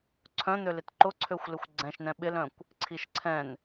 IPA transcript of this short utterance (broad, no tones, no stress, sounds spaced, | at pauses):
ǀʰ œ̃ n̪ ø l ɪ t ǃ ʊ ǀʰ ø xʷ l ɪ xʷ ɡ͡ǀ ɛ̃ ʃ n ɛ̃ ɓ ɪ l œ̃ kʷ | ǀʰ i ʃ ǀʰ ɛ̃ n